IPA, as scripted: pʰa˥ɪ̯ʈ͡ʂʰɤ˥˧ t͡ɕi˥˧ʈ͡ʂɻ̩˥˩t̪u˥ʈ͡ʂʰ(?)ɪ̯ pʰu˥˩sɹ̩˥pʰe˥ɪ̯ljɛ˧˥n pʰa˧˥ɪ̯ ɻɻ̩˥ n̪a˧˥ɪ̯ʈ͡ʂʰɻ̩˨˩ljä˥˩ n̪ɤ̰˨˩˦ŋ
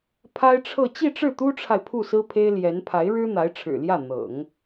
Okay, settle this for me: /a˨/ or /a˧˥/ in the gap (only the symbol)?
a˨